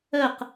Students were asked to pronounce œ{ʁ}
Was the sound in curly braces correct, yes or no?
no